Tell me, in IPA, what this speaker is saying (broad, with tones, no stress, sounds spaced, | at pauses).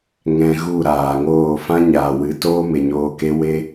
ŋ ɛ̃˧ ɣ u˦˨ ɾ aː˨ ŋ oː˦˨ f ã˦ ɲ aː˨ w ɨ˨˦ t oː˦ m e˨ ɲ oː˧ k e˦ w e˦